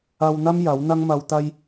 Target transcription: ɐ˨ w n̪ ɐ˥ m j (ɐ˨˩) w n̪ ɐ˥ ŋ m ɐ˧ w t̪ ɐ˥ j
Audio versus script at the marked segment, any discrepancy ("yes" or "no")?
yes